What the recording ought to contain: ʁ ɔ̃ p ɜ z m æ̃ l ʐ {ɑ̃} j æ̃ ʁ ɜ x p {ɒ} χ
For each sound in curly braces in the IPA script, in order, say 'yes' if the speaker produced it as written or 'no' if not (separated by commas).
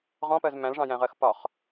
yes, yes